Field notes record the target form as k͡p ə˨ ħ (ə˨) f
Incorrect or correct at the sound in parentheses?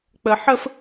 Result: incorrect: ə˦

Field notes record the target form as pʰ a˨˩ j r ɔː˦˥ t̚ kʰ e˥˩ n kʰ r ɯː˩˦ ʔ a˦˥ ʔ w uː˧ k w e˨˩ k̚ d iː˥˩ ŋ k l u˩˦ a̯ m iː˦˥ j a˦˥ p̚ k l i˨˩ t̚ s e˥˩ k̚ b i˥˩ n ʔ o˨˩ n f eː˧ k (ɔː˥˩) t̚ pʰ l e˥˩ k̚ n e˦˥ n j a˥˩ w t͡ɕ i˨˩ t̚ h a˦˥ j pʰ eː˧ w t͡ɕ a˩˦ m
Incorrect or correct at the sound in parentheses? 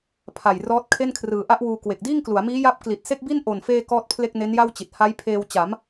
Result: correct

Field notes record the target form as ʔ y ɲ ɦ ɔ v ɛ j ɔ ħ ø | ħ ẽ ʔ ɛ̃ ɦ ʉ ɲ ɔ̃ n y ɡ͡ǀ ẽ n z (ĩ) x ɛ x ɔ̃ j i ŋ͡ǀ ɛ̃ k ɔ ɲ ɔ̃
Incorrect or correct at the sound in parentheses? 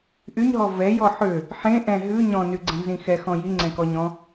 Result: correct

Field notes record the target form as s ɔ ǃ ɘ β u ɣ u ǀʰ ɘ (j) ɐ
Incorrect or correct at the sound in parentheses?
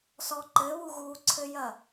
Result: correct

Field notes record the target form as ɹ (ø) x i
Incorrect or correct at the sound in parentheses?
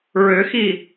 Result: correct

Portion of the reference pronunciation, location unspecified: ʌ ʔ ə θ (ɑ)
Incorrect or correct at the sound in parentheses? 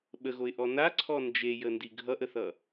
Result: incorrect: ʌ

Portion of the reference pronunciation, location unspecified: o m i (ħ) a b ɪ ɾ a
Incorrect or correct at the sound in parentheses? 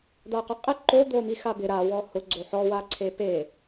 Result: incorrect: x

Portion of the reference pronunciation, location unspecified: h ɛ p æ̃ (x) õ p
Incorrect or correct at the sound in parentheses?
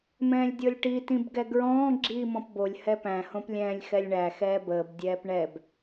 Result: incorrect: h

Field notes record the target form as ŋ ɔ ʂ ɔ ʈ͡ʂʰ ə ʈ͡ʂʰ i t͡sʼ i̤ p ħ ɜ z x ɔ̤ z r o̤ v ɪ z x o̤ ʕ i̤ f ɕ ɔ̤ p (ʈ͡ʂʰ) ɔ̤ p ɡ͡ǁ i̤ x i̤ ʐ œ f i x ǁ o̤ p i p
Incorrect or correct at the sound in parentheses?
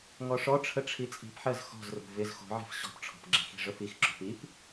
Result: correct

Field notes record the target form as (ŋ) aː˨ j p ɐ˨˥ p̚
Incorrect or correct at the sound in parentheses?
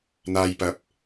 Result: incorrect: n̪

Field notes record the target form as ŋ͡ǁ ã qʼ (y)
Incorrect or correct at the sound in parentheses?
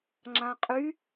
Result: correct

